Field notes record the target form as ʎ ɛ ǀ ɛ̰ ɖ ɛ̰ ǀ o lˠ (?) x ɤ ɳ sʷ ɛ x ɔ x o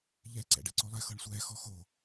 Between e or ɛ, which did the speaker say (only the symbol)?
ɛ